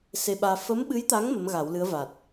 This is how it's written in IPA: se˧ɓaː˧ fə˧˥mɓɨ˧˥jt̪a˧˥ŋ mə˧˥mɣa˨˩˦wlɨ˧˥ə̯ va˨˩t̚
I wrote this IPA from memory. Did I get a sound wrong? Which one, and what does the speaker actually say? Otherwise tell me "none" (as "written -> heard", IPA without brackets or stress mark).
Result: none